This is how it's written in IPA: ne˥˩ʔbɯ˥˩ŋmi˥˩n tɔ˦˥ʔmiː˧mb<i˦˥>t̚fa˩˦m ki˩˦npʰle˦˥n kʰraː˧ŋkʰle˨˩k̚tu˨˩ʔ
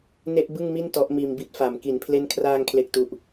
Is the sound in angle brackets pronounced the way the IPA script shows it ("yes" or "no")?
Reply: yes